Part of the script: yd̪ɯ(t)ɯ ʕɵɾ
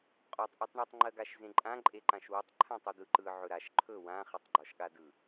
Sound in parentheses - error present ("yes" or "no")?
yes